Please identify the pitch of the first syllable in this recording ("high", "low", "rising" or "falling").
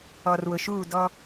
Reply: low